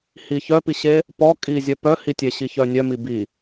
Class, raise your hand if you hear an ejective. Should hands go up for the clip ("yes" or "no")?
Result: yes